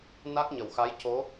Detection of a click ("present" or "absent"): absent